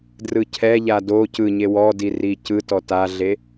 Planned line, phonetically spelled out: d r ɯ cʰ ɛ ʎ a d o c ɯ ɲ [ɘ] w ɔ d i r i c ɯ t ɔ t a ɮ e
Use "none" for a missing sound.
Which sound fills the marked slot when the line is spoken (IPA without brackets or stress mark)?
e